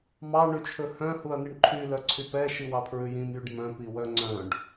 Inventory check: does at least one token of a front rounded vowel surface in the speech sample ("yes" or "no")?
yes